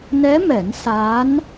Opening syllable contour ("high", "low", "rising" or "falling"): rising